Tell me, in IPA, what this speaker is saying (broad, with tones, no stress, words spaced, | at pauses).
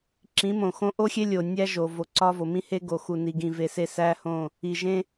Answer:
ǁĩ˨˦mõ˨xõ˦ ʔo˦xʲe˦lʲo˨ nʲæ˦ ʒo˨ vo˨˦ǀɒ˦vo˨ mĩ˦he˦ɡo˨ xu˨ni˨ɡĩ˨ ve˨se˦˨sæ˦hõ˦˨ | i˨ʒẽ˦